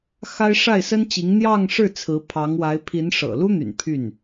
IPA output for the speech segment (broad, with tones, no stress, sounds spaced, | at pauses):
x a˥ ɪ̯ ʂ a˥˩ ɪ̯ s ə˥ n t͡ɕ i˧˥ ŋ n̪ j ɑ˥˧ ŋ ʂ ɻ̩˥˩ t͡sʰ ɹ̩˧˥ pʰ ɑ˧˥ ŋ w a˧˥ ɪ̯ pʰ i˧˥ n ʂ ɤ̰˨˩ l u˥ n̪ y̰˨˩ n pʰ y˥˩ n